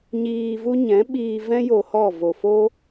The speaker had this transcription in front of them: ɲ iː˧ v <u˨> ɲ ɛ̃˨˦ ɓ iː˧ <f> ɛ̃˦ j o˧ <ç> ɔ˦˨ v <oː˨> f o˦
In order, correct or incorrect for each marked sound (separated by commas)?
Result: incorrect, incorrect, incorrect, incorrect